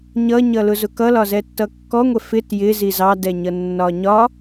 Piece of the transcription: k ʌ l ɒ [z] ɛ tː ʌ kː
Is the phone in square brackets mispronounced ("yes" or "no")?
no